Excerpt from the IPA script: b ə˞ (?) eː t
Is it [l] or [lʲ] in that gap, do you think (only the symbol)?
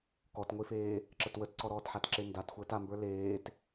l